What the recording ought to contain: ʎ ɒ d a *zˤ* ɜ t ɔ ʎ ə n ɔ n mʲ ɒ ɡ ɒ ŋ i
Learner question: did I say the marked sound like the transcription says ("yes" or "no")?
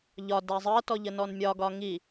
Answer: yes